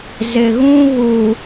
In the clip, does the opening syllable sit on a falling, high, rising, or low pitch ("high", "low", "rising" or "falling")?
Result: low